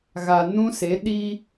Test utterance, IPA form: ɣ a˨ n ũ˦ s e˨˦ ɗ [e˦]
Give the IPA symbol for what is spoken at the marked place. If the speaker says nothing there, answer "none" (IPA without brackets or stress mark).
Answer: i˦